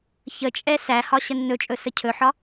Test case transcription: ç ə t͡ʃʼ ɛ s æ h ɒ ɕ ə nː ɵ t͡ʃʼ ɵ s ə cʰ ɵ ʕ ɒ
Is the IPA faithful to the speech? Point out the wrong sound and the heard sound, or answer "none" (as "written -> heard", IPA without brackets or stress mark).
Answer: ʕ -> ħ